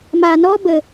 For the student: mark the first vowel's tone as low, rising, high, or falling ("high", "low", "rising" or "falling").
low